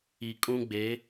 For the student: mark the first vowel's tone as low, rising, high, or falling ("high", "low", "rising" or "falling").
low